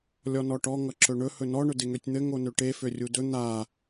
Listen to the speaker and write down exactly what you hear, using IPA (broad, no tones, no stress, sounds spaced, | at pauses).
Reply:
lʲ ɔ n ɔ ʈ ɔ ŋ ʌ ǁ ɵ ɳ ɵ h ɵ n ɔ ɳ ɵ d e ŋ ø tʲ n̪ ɘ ŋ o n ø ʈ e f ø rʲ u d ɵ n̪ a